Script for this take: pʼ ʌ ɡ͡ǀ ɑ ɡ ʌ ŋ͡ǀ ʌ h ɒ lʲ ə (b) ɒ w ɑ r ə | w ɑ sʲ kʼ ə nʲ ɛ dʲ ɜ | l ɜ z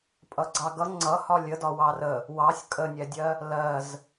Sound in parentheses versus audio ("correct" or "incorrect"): incorrect